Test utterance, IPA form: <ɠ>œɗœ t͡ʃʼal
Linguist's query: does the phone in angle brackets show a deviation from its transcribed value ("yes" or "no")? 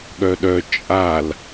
no